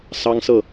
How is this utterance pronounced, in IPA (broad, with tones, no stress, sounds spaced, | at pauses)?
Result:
s ɑ˦ ŋ s ɤ˥˨